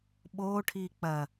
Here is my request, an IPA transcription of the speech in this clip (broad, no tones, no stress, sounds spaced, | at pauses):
ɓ oː ʈʰ iː k͡p ɐ